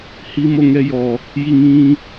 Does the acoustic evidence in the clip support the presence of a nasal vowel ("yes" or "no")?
yes